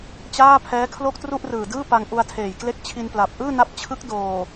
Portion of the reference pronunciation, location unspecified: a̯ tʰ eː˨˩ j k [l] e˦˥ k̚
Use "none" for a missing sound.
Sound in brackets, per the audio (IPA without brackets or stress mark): l